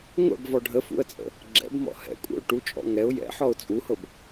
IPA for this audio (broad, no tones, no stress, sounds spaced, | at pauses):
ŋʷ ɛ̰ b v ɔ ɖʱ ə f ṵ ə̯ t͡sʼ ə̰ | ɡ͡ǁ ɛ̰ b m ɔ̰ h ɛ̰ kʷʼ ɛ̰ ʊ̯ ʈ u t͡ʃʼ ɔ̰ ŋ ɛ ʊ̯ j ɛ̰ ħ ɔ ʊ̯ t͡sʼ u h ɤ b